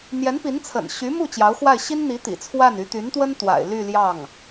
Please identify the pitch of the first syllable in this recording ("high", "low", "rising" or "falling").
rising